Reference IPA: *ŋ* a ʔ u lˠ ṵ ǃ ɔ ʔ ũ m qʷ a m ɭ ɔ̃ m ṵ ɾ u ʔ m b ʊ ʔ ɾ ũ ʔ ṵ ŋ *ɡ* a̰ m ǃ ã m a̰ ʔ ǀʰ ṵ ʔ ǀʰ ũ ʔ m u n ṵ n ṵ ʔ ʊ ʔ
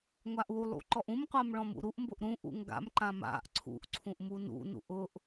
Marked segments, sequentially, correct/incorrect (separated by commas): incorrect, correct